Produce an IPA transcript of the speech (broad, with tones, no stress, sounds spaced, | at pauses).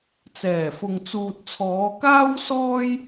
t͡s ɛː˨˩ f ʊ˨ ŋ t͡s uː˨ t̚ t͡sʰ ɔː˨˧ k aː˥ w s ɔː˥ j